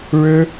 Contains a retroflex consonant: yes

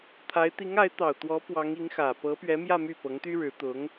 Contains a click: no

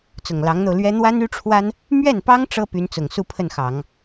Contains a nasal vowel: no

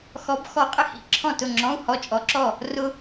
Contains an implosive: no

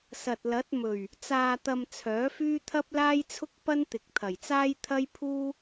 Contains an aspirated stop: yes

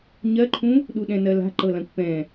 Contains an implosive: yes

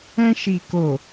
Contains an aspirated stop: no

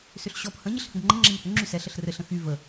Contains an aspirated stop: no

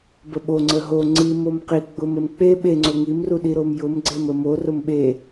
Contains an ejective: no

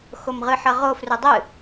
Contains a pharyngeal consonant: yes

